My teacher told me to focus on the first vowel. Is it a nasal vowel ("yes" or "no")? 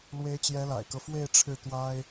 no